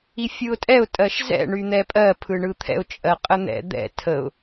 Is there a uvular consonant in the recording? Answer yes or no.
yes